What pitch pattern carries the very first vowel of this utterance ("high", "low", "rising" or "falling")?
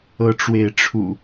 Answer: rising